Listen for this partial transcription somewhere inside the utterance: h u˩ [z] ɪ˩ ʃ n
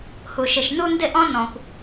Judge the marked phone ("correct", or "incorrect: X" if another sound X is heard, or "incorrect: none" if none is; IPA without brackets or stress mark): incorrect: ʃ